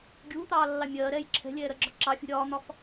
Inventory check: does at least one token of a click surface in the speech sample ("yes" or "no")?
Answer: yes